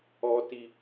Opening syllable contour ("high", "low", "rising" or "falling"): low